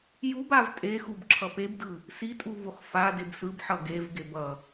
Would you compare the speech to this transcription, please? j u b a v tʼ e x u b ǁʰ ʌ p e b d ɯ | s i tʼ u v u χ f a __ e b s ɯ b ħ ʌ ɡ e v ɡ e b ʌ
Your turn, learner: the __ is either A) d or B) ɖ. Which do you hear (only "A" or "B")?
A